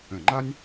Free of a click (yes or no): no